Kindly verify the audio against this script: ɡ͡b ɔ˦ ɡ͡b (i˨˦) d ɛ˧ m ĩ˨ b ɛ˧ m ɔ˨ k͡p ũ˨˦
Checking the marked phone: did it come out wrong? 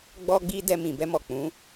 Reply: yes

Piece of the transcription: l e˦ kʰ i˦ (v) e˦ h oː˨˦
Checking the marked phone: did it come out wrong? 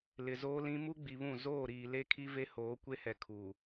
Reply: no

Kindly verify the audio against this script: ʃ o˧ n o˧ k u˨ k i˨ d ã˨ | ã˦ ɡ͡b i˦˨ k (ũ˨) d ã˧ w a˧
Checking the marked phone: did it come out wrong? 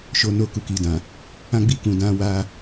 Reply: no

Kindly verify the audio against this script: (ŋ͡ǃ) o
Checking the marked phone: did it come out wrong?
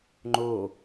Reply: no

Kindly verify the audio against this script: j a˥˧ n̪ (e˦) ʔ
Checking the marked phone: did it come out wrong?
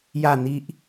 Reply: yes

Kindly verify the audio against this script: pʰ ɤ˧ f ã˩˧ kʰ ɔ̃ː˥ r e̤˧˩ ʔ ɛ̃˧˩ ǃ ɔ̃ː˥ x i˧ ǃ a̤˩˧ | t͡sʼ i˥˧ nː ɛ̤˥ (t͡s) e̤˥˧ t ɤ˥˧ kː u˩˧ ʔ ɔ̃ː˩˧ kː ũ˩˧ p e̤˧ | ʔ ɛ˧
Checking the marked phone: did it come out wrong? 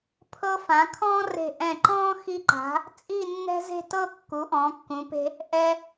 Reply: yes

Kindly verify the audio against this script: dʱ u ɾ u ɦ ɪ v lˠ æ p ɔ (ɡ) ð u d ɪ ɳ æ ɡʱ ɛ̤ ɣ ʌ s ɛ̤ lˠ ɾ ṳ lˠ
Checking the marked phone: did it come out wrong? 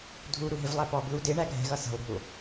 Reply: no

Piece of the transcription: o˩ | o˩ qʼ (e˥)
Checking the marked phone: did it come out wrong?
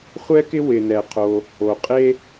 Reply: no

